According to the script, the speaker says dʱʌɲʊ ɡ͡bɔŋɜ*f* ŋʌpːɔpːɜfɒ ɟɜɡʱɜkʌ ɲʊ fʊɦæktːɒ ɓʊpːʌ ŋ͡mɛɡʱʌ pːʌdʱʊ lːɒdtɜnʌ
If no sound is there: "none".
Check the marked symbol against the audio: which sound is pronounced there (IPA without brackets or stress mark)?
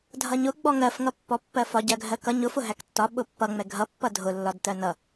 f